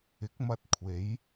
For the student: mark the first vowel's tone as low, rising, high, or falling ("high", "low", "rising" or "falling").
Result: rising